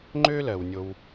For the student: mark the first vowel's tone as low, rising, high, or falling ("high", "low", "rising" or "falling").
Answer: high